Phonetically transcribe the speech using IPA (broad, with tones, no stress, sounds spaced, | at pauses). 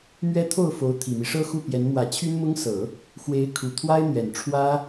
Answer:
m ɥ ɛ˥ t̪ʰ o˥˩ ʊ̯ f o˧˥ ʊ̯ t̪ʰ i˨˩ m i˦ ʂ ɤ˥ x u˥˩ p j ɛ˧˥ n m w ä˧˥ t͡ɕʰ y˥ n m ʊ˥ ŋ s ɤ˨˩˦ | x w e˧˥ ɪ̯ kʰ u˨˩ t̪ʰ w a˥ ɪ̯ n̪ ɥ ɛ˨˩ n ʈ͡ʂʰ w ä˥